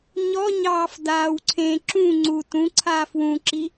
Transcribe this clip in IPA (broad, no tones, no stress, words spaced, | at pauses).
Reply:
ɲɔɲɑːf daːwǀʰẽ ǁũ ŋ͡ǀu tũ ǀʰaːfwũǁi